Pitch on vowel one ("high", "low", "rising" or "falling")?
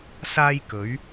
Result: high